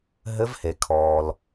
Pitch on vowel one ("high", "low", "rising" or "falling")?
rising